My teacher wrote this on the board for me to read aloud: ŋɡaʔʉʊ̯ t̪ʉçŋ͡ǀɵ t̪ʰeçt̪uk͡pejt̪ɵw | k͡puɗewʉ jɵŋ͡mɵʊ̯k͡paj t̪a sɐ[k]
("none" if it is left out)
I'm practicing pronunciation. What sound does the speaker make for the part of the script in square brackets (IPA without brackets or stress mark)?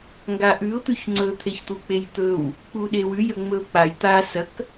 k